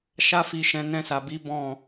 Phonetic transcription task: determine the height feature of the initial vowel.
low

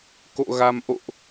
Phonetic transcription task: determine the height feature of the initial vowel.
mid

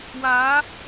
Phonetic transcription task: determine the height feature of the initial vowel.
low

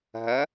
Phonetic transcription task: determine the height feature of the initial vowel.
low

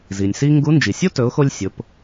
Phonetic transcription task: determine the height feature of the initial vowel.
high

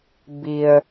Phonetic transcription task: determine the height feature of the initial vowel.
high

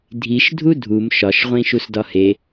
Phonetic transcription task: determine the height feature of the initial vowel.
high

